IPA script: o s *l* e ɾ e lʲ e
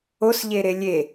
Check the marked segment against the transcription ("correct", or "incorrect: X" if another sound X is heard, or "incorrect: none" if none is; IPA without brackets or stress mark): incorrect: ʎ